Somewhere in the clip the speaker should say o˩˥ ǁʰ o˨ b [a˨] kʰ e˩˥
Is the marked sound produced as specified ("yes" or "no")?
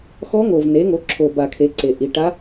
yes